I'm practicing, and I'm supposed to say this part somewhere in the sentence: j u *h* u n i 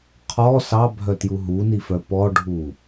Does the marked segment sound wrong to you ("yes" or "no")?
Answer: yes